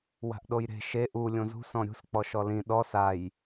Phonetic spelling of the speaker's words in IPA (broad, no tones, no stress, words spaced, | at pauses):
wa̤ʔɗojɾe̤ ʃe ʔu lʲõzṳsɔ̃ ɾʲṳsk͡pɔ ʃɔlĩ ɗɔ saj